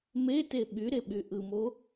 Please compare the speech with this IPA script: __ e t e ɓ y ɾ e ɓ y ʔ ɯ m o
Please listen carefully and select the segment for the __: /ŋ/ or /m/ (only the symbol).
m